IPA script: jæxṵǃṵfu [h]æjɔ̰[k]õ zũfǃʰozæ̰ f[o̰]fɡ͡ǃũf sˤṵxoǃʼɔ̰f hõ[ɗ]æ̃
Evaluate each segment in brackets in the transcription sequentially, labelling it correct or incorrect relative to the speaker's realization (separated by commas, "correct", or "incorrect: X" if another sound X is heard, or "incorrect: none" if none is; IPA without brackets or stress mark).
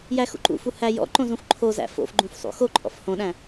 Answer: correct, incorrect: ǃ, correct, correct